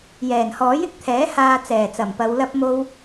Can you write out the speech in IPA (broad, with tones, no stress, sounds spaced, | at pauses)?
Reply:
j ɛː˨˩ n h ɔː˨˥ j ɪ˨˥ k̚ t̪ʰ ɛː˨˥ h aː˧ t͡s ɛː˨˩ t͡s ɐ˨˩ m p ɐ˨˧ w l ɐ˥ p̚ m o˥ w